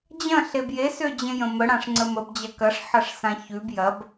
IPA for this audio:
d͡ʑ ɐ̃ ɬ e b j e s ø d͡ʑ ẽ j ə̃ m ə ɽ ã ʂ ŋ͡ǀ ə m ə b d͡ʑ ɐ k ɐ ʂ ħ ɐ ʂ s ã ç ʉ b j ɐ b

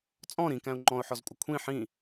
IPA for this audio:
t͡sʼ ɔ̃ ɾ ĩ k æ̃ ʊ̯ ŋ͡ǃ ɔ̃ ʊ̯ ħ ɔ z kʷʼ ɪ kʷʰ ĩ ħ ĩ

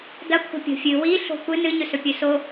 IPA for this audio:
d ɐ kʷʰ a̤ pʲ o̤ fʲ ɨ w i ɬ o̤ kʷ ɨ n ɨ ɲ ɵ s ɵ pʲ ɵ s o

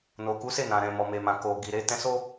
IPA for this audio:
n o˨ k u˨˦ s e˦˨ n ã˨ ɾ ɛ̃˨ m ɔ˨ m e˨ m ã˨ k o˨ ɡ i˨ ɾ e˨˦ t ɛ̃˧ s o˦

